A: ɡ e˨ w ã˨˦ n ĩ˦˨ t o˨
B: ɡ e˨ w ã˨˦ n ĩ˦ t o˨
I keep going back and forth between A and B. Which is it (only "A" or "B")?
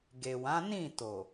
A